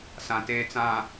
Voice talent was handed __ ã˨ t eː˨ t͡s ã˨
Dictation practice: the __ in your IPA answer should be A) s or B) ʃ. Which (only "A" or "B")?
A